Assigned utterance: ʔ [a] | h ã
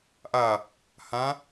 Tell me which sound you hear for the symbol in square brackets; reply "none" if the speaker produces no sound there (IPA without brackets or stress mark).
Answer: a